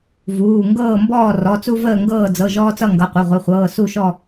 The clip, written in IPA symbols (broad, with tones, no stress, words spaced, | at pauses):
vuː˩˧˩ ŋɡɤː˥˨mbɔː˥˨ rɔ˩˧˩t͡su˦ vəː˥˨ ŋɡɤː˥˨d͡zɤ˩˧˩ ʒɔː˦t͡sʌ˥˨ ŋɡʌ˩˧˩qʷə˩˧˩ʁʷe˩˧˩χʷɤː˩˧˩ su˥˨ʃɔ˥˨